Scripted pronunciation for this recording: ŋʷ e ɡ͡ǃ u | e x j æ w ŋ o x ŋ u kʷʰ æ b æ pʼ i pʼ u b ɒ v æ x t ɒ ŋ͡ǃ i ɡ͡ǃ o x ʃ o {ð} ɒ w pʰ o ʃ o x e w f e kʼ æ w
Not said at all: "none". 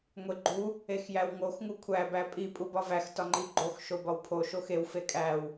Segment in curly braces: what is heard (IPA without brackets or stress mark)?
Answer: b